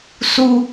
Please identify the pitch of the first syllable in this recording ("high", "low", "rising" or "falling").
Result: high